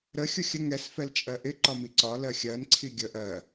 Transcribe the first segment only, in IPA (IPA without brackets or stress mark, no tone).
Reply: ɾ